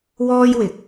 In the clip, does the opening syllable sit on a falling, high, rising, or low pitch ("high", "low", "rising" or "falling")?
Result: high